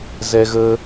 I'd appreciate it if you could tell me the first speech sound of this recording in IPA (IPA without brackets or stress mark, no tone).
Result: z